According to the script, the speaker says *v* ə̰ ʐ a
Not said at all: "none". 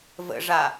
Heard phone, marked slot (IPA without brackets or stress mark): v